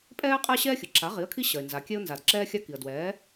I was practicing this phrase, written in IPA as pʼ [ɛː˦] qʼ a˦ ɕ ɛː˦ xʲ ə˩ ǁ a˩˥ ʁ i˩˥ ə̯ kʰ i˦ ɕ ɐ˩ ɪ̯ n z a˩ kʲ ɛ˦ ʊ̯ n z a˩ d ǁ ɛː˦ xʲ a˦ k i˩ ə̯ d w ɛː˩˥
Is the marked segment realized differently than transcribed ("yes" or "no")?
no